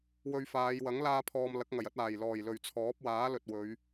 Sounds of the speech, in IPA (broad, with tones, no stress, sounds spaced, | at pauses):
w ɵ˧ ɥ f aː˨˧ j w ɐ˨˥ ŋ l aː˥ pʰ ɔː˧ m l ɐ˨˥ k̚ ŋ ɐ˨˩ j ɐ˨˥ t̚ aː˨˩ j l ɔː˨˩ j l ɵ˨˩ ɥ t͡sʰ ɔː˨˥ p̚ w aː˨˥ l ɵ˨ t̚ w ɵ˨˧ ɥ